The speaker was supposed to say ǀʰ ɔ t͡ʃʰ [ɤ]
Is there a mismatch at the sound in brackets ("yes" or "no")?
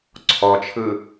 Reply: yes